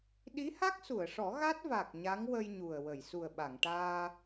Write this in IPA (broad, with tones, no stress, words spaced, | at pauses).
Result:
ɗi˧˥ha˦˥k̚su˨˩˨ə̯ʂɔ˨˩˦ ɣa˦˥t̚va˨˩k̚ ɲa˧˥ŋwə˧j ɲu˨˩ə̯ wə˨˩˨jsu˨˩ə̯ ɓa˨˩˨ŋʈaː˧